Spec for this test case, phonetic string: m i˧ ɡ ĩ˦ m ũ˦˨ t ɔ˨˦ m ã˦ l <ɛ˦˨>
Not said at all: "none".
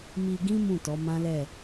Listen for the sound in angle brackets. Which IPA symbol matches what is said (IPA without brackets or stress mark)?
ɛ˦˨